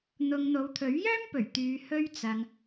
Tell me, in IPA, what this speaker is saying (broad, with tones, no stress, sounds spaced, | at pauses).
n̪ ʊ˧ ŋ n̪ o˨˧ w t̪ʰ ɵ˨˥ ɥ j œː˥ m p ɵ˨˩ ɥ t̪ yː˨˧ h ɵ˧ ɥ t͡s ɐ˨ ŋ